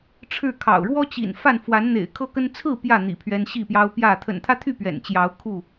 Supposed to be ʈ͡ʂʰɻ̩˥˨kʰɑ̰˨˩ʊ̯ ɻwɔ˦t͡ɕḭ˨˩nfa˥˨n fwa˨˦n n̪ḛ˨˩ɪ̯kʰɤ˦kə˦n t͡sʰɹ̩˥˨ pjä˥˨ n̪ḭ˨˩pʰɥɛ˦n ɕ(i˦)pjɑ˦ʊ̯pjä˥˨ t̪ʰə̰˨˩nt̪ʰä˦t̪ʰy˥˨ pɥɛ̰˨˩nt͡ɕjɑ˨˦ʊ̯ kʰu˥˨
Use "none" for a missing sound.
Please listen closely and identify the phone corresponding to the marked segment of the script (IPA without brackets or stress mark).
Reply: i˥˨